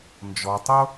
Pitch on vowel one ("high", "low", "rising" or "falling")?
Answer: low